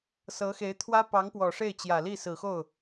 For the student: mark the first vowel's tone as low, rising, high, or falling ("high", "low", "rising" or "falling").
rising